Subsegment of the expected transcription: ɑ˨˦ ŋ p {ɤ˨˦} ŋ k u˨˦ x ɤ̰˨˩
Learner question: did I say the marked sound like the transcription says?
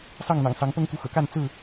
no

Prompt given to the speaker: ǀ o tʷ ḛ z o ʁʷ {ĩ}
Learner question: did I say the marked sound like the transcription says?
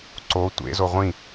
yes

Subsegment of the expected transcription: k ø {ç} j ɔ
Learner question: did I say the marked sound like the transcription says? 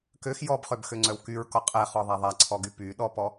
no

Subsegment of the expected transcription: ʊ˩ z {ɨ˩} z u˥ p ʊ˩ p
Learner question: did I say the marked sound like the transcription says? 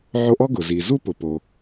no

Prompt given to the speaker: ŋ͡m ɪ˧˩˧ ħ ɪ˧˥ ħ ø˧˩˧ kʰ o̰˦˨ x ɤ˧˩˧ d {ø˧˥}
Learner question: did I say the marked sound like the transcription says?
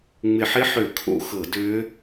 yes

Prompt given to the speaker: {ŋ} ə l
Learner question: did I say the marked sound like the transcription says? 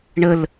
no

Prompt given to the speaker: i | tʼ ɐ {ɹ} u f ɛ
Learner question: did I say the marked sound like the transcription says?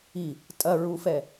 yes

